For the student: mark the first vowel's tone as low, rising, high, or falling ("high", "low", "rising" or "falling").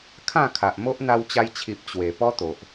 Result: falling